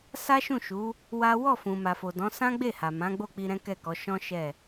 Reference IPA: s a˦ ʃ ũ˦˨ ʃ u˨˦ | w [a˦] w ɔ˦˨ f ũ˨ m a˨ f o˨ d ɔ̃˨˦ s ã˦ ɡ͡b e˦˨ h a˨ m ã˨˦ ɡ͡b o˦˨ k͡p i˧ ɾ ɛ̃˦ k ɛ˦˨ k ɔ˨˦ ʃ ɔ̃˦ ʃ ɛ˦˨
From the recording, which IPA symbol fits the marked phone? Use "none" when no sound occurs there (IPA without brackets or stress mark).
a˦